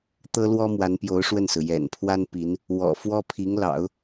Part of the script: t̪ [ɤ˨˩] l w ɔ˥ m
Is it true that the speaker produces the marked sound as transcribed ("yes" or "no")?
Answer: no